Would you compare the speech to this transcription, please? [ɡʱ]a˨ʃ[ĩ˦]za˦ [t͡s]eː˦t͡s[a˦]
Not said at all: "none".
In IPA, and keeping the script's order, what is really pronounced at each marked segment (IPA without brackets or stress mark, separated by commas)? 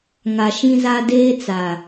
ŋ, ĩ˦, d, a˨